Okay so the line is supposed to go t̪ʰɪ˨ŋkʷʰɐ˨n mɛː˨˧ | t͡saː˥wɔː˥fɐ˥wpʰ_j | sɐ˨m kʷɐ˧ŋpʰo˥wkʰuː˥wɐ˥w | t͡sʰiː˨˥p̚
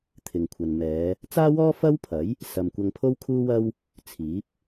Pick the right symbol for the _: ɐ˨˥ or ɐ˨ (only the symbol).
ɐ˨˥